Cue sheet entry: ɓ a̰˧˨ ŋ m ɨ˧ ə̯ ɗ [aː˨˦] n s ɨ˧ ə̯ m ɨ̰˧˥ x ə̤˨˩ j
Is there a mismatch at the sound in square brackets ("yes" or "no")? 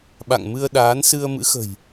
no